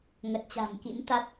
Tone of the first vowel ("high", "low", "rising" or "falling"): low